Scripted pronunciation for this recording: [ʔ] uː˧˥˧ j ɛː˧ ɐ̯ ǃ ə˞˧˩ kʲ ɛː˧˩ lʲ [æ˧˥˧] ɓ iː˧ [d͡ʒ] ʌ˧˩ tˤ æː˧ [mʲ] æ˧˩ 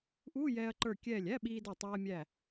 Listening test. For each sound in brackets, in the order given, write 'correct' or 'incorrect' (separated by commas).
correct, correct, incorrect, correct